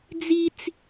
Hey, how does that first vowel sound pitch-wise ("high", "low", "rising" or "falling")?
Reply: high